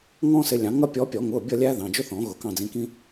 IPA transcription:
ŋɔ̃˥sɪ˨˦lʲɑ̃˨˩˦ŋʌ˥ pʲɔ˨˦pʲɔ˨˩˦ŋʊ˩˧˩bʲʌ˦˨ lʲæ˥ðɑ̃˩˧˩ d͡ʒʊ˥θɔ̃˨˩˦ ɣʊ˨˩˦kɑ̃˦˨d͡zĩ˨˦kĩ˥

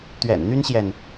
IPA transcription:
t̪ɥɛ̰˨˩nn̪y˦nɕjɛ˨n

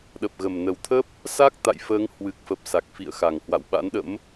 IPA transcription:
ɗə˨˩p̚ɣə˨˩m nə˨˩wt̪ʰə˦˥p̚ | sa˦˥k̚ t̪a̰˧˨jfəː˨˦ŋ hwɨ˨˩k̚fə˨˩p̚ sa˨˩k̚fḭ˧˨ə̯ xa˨˩ŋhwa̰˧˨w ɓa̰˧˥nɗə̰˧˥m

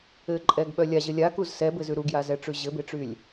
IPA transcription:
ɘǃʼɛɡɓœ lʲaʑɘ lʲakuz sɛbɘzʉ ɾuɡjazɛʈ͡ʂʉ ʑɘbeʈ͡ʂylʲ

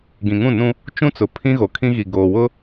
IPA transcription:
ɡĩ˨ŋũ˦˨nũ˦ | t͡ʃũ˦t͡sʊ˨ pʰĩ˦ɣo˨kʰĩ˦ ɣi˨ ɡoː˨wʊ˦

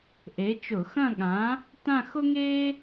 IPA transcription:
ʔe˨˥t͡ʃʊ˧˩˧ xɐ̃˥˧ɠã˨˥ | tã˥˧xʊ˥ŋeː˥

